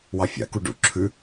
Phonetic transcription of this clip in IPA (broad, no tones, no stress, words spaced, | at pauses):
wɑfʲa̰ku ɖṵ ǁʰʉ